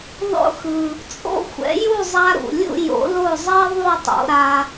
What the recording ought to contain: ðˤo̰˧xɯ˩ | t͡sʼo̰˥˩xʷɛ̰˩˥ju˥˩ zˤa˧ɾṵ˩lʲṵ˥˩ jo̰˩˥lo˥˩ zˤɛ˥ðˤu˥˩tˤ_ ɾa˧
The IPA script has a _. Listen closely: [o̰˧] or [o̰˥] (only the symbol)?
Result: o̰˧